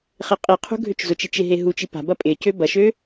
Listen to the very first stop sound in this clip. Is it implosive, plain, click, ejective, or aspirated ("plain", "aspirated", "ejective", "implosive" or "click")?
ejective